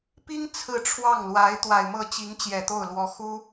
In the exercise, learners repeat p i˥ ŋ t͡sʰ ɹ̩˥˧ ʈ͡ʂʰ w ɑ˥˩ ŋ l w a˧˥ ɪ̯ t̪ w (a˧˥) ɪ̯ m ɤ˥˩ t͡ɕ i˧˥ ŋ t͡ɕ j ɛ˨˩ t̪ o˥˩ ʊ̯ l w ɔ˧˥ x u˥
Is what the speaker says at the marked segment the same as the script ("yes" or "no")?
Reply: no